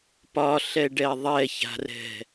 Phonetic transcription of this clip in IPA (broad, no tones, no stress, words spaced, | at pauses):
pɒɬɛɖɛ ðˤɛça̤rɛ̤